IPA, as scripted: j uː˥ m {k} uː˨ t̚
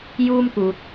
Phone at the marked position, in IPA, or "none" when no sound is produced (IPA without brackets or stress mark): k